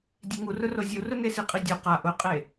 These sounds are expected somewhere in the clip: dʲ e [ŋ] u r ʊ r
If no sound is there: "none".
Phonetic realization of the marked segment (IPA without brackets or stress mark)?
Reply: ŋ